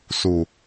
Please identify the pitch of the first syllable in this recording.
low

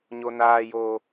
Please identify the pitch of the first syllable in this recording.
high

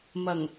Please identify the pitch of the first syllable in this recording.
low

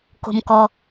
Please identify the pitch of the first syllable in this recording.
low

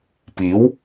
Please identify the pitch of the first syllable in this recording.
rising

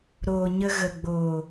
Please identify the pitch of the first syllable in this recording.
low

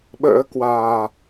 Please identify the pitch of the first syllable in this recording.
rising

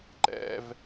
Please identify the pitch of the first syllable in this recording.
high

